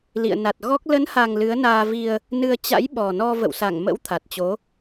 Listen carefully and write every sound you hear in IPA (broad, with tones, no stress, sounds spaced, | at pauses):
l ḭ˧˨ ə̯ n a˨˩ t̚ ɣ ɔ˦˥ k̚ l ə˨˦ n h a˨˩ ŋ l ɨ˨˦ ə̯ n aː˧ v i˧ ə̯ | n ɨ˧ ə̯ t͡ɕ a̰˧˥ j ɓ ɔ˨˩ n ɔ˧ v ə̰˧˨ w s a˧˩ ŋ m ə̰˧˥ w t̪ʰ a˨˩ t̚ t͡ɕ o˨˦